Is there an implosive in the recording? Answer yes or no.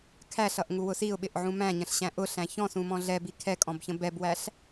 yes